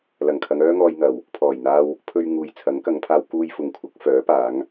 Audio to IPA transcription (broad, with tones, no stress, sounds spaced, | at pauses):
l ɐ˨˩ ŋ kʰ ɐ˨˧ ŋ œː˥ ŋ ɔː˧ j ŋ ɐ˨˩ w | pʰ ɔː˨˩ j n̪ aː˧ w | pʰ ɵ˧ ɥ ŋ uː˨ j t͡sʰ ɐ˨˥ ŋ k ɐ˨˧ ŋ pʰ aː˧ w k uː˧ j f ʊ˨ ŋ kʷʰ ɐ˨˥ k̚ f œː˨˥ p aː˨˥ ŋ